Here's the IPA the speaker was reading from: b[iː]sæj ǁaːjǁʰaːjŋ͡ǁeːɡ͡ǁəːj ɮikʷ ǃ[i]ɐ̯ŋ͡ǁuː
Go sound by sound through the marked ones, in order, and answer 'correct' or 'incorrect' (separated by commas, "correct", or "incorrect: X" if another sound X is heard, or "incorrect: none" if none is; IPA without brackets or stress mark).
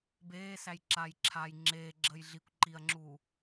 incorrect: eː, correct